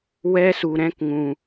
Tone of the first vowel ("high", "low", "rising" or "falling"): high